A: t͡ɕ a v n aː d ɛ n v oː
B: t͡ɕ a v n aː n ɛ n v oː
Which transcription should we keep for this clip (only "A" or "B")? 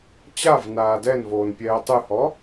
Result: A